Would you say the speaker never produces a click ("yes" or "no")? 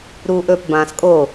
yes